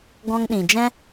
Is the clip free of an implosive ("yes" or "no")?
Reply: no